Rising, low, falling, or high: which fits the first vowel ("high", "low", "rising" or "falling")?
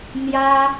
high